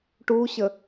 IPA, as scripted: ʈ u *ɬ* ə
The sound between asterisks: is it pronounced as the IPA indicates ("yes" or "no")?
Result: no